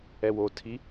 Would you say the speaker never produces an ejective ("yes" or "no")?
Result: yes